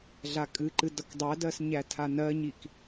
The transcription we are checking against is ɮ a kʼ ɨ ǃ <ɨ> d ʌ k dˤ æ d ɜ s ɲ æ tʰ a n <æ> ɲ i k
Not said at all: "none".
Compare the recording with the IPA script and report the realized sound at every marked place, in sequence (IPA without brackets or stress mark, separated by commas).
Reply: ɨ, ɜ